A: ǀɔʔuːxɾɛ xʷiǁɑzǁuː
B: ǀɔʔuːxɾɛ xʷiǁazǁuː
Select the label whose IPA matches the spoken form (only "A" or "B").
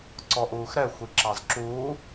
A